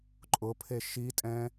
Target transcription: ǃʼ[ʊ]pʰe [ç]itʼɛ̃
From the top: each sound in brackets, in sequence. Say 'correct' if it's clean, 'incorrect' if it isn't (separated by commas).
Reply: correct, incorrect